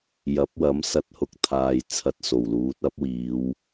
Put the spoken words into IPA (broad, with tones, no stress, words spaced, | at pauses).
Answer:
jɐ˨˥p̚wɐ˨˥m sɐ˧t̚hʊ˧k̚ t̪ʰaː˨j t͡sʰɐ˧t̚so˨˩wluː˨˥t̚ ɐ˨˥p̚wiː˨˧w